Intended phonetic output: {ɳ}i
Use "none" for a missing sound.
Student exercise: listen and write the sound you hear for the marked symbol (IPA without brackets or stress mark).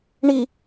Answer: ɳ